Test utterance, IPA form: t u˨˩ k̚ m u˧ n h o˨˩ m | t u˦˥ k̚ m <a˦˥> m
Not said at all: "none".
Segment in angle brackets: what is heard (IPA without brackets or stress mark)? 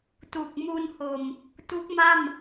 a˥˩